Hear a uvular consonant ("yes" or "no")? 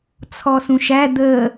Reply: no